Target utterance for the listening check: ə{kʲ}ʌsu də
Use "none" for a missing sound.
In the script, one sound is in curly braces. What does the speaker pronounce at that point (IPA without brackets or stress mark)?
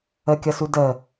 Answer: kʲ